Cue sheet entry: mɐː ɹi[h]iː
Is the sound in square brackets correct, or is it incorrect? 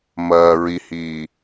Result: correct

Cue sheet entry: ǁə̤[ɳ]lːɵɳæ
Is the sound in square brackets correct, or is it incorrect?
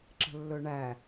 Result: incorrect: none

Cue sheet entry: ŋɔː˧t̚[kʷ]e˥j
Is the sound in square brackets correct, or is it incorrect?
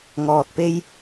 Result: incorrect: p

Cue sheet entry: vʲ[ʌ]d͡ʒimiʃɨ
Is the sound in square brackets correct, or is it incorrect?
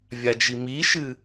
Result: incorrect: a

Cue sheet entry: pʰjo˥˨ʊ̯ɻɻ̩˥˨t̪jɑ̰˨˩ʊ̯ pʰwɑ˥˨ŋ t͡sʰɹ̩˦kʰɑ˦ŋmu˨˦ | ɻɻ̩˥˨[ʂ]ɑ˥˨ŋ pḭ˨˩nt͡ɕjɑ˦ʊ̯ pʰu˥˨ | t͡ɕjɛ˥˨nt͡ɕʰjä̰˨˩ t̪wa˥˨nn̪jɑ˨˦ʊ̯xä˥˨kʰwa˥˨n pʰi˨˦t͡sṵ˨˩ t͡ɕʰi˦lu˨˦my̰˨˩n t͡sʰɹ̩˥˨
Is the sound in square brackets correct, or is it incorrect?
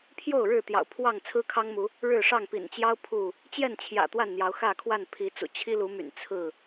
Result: correct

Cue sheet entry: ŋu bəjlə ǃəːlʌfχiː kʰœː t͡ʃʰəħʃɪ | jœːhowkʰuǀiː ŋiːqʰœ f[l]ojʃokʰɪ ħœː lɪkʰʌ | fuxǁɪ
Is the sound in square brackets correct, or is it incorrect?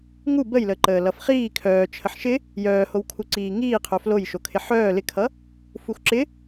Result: correct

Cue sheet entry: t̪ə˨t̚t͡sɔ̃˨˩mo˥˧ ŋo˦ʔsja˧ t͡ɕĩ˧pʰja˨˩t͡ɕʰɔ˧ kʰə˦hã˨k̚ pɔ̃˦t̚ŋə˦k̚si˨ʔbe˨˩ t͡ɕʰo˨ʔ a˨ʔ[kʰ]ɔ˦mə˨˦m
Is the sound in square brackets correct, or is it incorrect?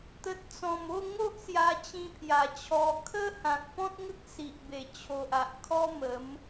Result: correct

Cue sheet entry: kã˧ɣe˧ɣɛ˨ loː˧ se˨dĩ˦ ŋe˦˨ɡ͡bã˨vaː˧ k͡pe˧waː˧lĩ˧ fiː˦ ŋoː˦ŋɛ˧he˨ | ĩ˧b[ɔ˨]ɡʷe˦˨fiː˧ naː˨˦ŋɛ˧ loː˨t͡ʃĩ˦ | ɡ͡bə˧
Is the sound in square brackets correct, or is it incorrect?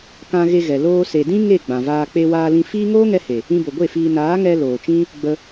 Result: incorrect: o˨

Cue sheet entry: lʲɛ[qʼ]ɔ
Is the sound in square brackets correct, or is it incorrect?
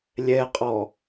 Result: correct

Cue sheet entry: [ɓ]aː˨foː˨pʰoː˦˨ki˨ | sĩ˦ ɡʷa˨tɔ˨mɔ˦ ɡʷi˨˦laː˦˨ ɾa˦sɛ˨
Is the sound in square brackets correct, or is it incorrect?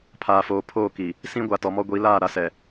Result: incorrect: pʰ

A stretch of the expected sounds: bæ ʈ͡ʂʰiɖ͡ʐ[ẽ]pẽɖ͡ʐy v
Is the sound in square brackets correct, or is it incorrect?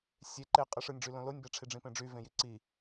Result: incorrect: ĩ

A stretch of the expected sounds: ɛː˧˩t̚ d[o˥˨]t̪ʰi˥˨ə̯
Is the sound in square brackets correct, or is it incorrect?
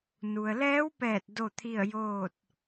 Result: correct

